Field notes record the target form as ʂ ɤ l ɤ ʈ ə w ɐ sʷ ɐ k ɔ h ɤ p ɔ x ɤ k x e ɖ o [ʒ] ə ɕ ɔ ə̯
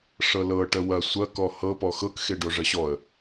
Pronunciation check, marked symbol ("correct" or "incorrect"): incorrect